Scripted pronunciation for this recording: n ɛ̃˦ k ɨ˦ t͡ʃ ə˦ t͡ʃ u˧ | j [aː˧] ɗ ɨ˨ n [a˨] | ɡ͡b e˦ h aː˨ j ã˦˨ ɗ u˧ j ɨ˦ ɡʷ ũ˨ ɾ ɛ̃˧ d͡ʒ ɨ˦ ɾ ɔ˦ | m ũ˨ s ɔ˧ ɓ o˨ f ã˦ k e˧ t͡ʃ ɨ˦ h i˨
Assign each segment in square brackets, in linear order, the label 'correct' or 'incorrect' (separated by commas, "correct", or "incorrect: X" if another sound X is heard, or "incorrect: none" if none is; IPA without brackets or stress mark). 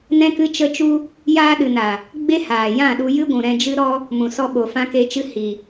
correct, correct